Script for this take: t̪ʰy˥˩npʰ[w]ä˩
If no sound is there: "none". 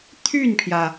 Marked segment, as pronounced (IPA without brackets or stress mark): j